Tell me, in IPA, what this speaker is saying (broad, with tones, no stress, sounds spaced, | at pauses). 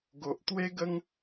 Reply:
ɡ o˨ ʔ t̪ w e˦ ɡ ə˦ ŋ